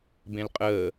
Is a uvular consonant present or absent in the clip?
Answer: present